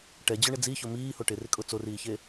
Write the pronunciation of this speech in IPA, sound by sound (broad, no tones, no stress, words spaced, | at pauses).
ʈɛd͡ʑʊ ɳɪd͡ziçʊ miːho ʈɪrɪkʼʊ t͡soriːçe